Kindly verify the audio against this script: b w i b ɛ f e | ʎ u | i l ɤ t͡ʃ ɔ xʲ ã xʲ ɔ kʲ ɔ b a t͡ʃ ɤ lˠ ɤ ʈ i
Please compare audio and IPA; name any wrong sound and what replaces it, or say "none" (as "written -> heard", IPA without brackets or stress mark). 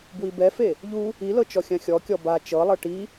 none